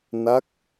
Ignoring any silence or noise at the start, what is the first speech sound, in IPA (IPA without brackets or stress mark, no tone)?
n